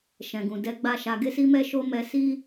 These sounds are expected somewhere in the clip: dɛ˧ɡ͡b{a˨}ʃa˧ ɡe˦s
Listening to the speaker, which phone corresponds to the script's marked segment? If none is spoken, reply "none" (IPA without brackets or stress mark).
a˦